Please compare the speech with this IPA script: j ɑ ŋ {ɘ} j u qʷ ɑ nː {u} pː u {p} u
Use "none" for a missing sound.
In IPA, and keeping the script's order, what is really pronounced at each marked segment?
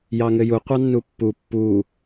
ɘ, u, pː

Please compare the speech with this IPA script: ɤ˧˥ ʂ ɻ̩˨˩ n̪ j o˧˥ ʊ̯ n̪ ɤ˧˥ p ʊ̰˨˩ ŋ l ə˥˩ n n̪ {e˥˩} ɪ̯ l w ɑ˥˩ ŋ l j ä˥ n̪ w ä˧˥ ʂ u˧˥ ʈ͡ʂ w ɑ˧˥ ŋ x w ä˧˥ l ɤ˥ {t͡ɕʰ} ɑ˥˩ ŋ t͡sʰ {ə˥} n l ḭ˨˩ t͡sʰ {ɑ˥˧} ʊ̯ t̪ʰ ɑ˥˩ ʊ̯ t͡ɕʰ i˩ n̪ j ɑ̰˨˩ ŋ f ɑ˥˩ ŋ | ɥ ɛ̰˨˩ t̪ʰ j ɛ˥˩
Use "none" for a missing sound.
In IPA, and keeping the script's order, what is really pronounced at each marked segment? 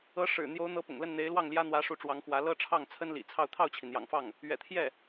e˧˥, ʈ͡ʂʰ, ə˥, ɑ˥˧

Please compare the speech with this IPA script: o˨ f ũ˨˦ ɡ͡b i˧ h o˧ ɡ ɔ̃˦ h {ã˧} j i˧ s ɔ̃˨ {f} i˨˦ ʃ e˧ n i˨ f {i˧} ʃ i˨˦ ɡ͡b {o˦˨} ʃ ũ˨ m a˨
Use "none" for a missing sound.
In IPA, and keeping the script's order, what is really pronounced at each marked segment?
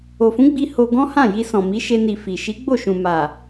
ã˦˨, m, i˨, o˦˨

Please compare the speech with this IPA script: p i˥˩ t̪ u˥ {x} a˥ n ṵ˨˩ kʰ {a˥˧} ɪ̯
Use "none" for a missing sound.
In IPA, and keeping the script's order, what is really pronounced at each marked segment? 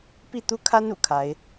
kʰ, a˧˥

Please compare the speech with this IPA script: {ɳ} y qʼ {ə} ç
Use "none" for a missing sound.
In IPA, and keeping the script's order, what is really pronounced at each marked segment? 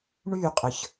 ɳ, ə

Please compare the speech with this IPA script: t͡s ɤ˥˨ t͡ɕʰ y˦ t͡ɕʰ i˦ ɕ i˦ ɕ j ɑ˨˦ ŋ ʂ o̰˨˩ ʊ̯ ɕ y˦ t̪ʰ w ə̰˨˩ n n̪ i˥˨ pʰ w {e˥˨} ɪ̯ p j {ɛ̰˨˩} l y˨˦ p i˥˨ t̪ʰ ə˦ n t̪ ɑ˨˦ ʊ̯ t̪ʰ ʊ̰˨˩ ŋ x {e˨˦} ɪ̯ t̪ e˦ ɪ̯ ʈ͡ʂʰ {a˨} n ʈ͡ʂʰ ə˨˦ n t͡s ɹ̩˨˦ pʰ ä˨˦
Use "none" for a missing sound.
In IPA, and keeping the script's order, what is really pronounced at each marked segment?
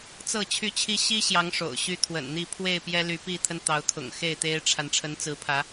e˥˨, ɛ˦, e˥˨, a˨

